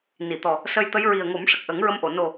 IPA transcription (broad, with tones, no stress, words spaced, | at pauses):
ni˨˩˨t̪ɔ˨˩ | sə˧jt̪ə˧˥j ɹi˨˩ə̯ŋo˨˩˦m ʂə˨˩k̚ʔə˨˩˦ŋɹə˧˥mʔo˨˩˨ no˨˩